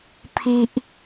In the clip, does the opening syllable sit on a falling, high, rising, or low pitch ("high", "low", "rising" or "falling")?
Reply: high